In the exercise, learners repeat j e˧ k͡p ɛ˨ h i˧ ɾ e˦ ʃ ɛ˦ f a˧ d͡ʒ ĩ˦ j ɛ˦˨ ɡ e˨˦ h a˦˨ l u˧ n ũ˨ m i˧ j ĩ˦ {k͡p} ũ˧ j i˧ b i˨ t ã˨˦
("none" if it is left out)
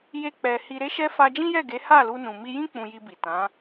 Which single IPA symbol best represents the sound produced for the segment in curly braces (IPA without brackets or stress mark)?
k͡p